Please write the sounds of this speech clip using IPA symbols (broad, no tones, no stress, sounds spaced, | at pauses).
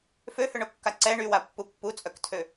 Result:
f ø h ø ɳ o kː a ǀ ɛ ɳ y w a pː u pː u t͡sʼ œ k tʰ ø